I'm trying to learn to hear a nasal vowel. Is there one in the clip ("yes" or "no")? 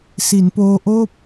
no